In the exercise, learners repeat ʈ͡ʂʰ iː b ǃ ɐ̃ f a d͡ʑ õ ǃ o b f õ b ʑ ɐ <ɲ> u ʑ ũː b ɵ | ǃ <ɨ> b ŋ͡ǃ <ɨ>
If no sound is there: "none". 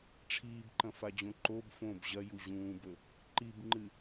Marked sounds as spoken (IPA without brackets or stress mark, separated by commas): j, i, ɨ